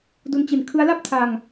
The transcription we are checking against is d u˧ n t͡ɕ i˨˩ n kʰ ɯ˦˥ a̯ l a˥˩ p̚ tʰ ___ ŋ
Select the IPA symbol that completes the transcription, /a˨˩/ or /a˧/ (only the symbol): a˧